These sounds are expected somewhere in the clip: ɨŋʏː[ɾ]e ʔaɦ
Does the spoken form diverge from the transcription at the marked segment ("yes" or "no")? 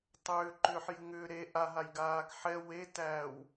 no